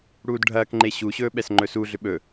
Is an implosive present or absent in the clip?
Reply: present